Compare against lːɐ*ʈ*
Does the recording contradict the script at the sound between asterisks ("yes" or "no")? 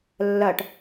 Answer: no